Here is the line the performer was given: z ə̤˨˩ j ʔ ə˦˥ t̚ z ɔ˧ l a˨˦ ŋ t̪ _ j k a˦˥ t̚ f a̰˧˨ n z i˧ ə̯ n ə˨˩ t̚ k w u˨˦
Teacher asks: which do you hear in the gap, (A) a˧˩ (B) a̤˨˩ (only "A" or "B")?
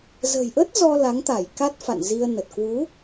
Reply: A